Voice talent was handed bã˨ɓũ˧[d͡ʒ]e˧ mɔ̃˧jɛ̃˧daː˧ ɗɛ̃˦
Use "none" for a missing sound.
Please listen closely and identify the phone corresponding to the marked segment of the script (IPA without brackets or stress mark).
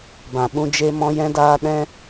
d͡ʒ